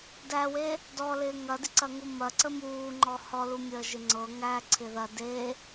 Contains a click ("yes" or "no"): yes